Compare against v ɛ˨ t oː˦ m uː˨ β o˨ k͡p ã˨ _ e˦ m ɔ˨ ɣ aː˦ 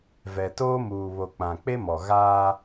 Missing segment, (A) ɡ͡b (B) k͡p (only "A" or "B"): B